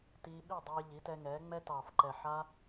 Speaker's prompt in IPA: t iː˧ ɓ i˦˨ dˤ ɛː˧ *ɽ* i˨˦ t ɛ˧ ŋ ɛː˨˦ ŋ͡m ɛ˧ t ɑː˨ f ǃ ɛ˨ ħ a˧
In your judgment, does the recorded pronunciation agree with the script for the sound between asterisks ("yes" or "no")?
no